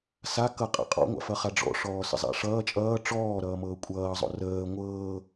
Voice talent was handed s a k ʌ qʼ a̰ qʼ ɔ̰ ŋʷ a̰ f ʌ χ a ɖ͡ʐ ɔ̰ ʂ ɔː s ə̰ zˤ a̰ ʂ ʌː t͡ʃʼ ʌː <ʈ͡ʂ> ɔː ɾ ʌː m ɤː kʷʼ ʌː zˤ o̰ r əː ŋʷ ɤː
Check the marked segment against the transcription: correct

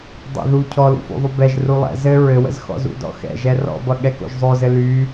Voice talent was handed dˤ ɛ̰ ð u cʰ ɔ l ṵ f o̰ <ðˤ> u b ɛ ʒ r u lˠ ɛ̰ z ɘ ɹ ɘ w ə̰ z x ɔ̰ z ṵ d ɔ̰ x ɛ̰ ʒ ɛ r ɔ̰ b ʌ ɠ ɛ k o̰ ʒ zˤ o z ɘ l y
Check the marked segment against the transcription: correct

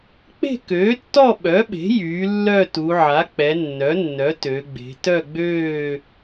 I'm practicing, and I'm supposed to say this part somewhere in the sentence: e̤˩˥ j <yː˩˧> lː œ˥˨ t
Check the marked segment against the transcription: correct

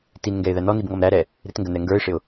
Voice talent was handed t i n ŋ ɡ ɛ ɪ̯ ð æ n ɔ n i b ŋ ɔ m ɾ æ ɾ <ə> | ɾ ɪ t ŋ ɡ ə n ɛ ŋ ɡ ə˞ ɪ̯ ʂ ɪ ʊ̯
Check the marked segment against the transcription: incorrect: ɛ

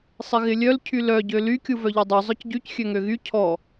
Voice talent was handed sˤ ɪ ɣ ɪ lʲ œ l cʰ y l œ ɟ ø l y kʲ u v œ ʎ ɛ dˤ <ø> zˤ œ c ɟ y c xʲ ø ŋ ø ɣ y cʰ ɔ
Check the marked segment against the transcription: correct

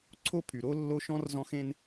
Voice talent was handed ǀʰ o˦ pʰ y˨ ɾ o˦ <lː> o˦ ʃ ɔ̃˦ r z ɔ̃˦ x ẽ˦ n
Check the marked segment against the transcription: correct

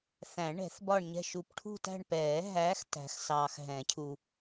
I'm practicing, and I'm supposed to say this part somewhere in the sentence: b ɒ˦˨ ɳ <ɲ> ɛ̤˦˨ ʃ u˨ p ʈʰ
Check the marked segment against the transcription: correct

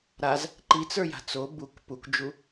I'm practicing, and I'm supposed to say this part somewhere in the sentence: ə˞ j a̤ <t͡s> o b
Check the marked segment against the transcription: correct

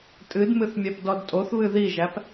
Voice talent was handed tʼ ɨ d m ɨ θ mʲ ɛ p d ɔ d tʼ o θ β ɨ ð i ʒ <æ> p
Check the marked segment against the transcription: correct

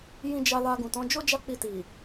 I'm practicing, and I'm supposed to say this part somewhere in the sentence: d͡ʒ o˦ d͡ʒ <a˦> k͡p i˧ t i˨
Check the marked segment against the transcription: correct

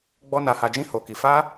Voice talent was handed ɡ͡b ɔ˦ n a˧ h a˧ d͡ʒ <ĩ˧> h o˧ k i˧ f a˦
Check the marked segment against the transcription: incorrect: ĩ˦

